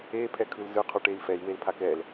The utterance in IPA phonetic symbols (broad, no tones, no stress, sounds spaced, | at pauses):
e pʰ ɛ kʰ ɯ l z ɯ qʰ u ʈ e i̯ f ɛ i̯ w e l pʰ a k ɛ l